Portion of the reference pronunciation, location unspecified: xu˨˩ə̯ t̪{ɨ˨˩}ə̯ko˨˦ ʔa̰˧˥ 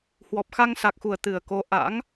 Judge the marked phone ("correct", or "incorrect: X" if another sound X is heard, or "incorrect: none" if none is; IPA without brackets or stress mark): correct